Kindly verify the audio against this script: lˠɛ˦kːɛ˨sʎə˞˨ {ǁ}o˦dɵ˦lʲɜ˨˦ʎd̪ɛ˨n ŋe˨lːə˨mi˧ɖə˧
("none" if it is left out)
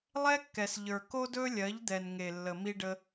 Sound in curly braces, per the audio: k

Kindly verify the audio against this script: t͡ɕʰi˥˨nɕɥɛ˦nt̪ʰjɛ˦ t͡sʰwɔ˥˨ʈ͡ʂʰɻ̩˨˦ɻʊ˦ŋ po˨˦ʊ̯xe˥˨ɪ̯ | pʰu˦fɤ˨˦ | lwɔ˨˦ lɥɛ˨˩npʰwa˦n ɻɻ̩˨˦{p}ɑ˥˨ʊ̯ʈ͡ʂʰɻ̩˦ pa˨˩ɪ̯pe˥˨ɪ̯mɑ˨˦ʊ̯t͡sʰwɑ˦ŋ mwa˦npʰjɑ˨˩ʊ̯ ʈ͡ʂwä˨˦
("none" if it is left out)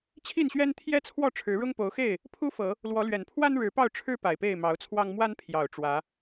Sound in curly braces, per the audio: p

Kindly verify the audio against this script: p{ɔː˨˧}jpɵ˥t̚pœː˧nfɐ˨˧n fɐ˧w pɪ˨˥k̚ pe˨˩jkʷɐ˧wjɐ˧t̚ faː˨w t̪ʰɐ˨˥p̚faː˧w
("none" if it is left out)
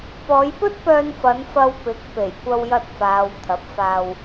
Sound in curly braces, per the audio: ɔː˨˧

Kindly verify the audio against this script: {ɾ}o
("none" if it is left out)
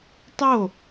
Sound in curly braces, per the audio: tˤ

